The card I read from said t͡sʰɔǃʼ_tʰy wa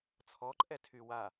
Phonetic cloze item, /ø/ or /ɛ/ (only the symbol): ɛ